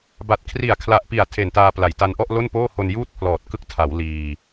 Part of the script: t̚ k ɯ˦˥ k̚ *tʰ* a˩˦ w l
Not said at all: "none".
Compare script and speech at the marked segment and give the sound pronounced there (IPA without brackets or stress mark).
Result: tʰ